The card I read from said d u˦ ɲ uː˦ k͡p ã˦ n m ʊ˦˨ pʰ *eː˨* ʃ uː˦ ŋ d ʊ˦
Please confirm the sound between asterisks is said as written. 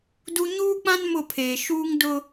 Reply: yes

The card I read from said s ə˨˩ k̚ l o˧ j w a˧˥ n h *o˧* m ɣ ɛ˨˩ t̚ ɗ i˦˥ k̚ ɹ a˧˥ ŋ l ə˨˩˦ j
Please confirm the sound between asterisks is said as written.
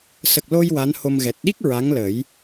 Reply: yes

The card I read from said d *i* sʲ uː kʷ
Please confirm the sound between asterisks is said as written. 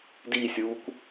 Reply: yes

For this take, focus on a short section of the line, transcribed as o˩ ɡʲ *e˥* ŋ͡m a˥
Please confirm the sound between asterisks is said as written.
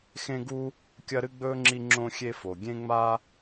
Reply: no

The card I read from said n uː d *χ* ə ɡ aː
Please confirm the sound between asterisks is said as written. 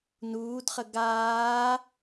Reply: yes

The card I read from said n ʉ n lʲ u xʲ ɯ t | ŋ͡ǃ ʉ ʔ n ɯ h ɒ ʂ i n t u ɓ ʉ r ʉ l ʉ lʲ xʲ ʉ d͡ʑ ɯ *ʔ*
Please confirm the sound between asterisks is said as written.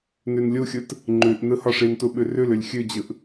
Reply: yes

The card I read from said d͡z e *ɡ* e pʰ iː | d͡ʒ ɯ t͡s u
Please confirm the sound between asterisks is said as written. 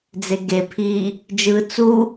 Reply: yes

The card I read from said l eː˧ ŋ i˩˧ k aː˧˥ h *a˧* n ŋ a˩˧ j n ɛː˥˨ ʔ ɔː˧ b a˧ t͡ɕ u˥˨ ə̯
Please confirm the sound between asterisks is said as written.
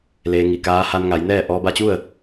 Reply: yes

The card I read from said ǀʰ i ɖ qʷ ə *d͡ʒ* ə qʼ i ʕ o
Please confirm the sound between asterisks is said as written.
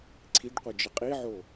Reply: yes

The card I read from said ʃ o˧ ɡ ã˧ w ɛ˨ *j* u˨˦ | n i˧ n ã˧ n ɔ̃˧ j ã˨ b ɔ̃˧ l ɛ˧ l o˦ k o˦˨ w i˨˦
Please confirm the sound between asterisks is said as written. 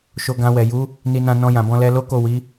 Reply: yes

